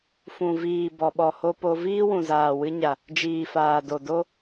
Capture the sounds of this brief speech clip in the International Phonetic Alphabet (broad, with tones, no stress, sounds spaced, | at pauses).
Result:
f ũ˨ v iː˨ b ɔ˨ ɓ ɔ˨ h o˧ p o˧ v iː˦ w ũ˨ z aː˨ w ɨ˧ ɲ a˨ | d͡ʒ iː˨ f aː˨ d o˨ d o˧